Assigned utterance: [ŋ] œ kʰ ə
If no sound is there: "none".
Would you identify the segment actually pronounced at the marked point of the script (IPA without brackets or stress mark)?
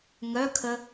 ŋ